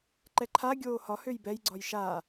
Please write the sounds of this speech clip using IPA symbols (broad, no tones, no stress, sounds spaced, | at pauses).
ǃ ɛ ǃʰ a ɡʲ oː h ɒ h ø j b ɛ j ɡ͡ǀ ɒ j ʃ a